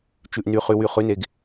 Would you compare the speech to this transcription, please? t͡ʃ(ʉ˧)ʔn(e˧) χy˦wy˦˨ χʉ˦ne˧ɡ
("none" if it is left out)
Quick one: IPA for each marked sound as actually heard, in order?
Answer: ʉ˧, y˧

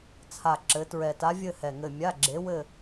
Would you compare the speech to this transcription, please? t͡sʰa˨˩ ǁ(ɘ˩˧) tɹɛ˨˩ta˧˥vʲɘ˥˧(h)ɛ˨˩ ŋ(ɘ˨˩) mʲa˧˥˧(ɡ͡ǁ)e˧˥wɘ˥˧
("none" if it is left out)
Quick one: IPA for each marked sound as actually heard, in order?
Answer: ɘ˩˧, h, ɘ˨˩, ɡ͡ǁ

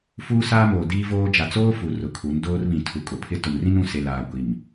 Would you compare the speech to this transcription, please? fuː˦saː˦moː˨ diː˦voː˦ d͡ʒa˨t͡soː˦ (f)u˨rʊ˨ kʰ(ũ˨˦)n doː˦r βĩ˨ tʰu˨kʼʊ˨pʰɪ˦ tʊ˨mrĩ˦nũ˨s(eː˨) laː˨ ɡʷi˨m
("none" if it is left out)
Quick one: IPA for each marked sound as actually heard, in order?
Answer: f, u˨˦, e˨

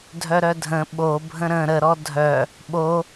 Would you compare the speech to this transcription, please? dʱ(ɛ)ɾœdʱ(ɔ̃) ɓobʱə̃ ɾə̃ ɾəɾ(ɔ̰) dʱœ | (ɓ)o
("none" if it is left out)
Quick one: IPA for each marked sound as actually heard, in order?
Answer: œ, ə̃, ɔ, ɓ

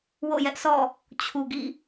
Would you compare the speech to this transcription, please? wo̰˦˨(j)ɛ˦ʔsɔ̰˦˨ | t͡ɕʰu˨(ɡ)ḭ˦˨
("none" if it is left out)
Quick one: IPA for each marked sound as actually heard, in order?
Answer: j, ɡ

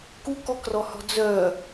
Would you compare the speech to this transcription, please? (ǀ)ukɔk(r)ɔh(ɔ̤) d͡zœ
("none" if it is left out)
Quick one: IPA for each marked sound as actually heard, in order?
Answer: k, r, ɔ̤

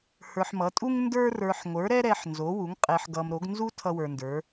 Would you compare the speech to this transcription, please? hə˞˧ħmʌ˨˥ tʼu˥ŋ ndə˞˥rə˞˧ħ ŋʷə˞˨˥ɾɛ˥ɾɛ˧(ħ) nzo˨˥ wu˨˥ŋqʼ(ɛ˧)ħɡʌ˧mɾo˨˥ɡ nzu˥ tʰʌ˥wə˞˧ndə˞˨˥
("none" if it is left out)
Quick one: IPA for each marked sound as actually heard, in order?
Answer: ħ, ɛ˧

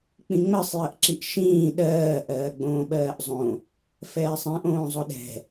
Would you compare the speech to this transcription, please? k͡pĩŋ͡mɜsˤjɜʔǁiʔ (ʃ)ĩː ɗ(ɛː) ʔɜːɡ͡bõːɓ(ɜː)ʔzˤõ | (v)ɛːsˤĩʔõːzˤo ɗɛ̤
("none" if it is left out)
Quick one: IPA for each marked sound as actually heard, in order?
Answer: ʃ, ɜː, ɜː, f

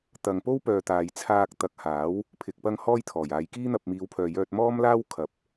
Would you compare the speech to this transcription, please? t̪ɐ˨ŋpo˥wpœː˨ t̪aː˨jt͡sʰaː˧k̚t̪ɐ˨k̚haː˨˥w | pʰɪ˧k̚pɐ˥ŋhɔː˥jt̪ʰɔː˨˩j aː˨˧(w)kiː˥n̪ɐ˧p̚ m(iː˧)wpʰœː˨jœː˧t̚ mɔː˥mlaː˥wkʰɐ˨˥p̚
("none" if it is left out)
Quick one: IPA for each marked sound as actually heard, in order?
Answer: j, iː˨˧

